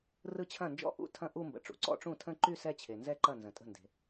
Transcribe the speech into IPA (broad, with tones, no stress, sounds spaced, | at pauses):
r ɯ˥˩ t͡ɕʰ ɐ̃˥˩ n d͡ʒ ɔ̰˥˧ ʔ ṵ˥˩ tʰ ɐ̃˥˧ ʔ u˥˧ m b ə̰˨ ʈ͡ʂ ṵ˨ ǀ ɔ̰˥˧ ʈ͡ʂ ũ˥˩ tʰ ə̃˥˧ ǃ y˥˧ s ɛ˥˧ t͡ɕʰ e˨ n z ɛ˥˧ ǃ ɐ˥˩ n z ə̃˨ tʼ ə̤˥˩ n d e̤˨